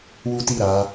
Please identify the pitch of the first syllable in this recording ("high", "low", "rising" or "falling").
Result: high